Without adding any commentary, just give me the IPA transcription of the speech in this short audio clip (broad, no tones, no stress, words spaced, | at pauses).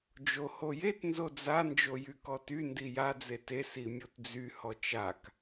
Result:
d͡ʒohojet nzod͡za nd͡ʒojykɔty ndija d͡zete simʲotd͡zy hɔt͡ʃak